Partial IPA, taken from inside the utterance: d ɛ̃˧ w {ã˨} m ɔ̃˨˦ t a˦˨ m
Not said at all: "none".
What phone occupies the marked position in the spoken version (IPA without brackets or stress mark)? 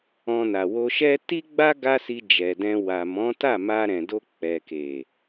a˨